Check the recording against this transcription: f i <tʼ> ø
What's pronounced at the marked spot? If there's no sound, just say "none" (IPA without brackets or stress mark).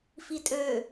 tʼ